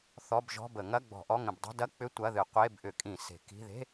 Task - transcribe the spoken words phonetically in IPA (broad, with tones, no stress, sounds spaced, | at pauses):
θ ɔ˧˥˧ b ʒ ɔ̤˧˥˧ b ə˧˩˧ ŋ ɐ˧˥˧ ɡ͡b ɔ̤˧˩˧ ʔ ɔ˧˥˧ ŋ ə̃˧˩˧ b dˤ i̤˧˥˧ d ɐ˧˥˧ k͡p ʏ˧˥˧ tʷ ɐ˧˥˧ ð ɨ˧˩˧ qʷ e˧˥˧ b ʔ ʏ˧˩˧ kʼ ĩ˧˩˧ s e̤˧˩˧ k i̤˧˥˧ ð e̤˧˥˧